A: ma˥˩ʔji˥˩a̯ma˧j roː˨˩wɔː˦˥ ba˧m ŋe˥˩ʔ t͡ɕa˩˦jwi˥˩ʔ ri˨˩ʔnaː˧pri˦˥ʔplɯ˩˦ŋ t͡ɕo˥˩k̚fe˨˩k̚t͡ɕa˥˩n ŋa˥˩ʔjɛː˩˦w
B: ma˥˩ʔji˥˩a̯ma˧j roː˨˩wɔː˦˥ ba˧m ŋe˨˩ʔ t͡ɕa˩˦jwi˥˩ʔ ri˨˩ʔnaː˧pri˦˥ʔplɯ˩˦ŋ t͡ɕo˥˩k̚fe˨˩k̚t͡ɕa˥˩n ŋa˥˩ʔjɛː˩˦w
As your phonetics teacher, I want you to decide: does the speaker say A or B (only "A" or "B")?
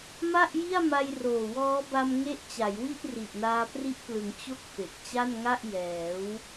A